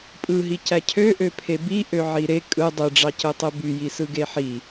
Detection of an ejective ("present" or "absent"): present